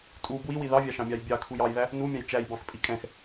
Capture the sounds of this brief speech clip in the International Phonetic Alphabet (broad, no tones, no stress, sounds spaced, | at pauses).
tʼ u b w i w i ð ɑ vʲ ɑ ʃ ɑ̃ mʲ ɑ j bʲ ɑ kʰ u j ɑ j ð æ | n u mʲ ɑ̃ j t͡ʃ æ j b ɑ̃ x pʼ i kʼ ɛ̃ x